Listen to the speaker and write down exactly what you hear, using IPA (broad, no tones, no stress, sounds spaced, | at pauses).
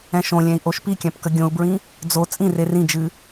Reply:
ɛ̃ ʃ õ lʲ ɛ̃ i̯ ʔ o ʃ p i kʲ ã p k ə ɡʲ õ u̯ b ɹ ĩ | d͡z o t͡sʼ ĩ r e r ĩ d͡ʒ ɨ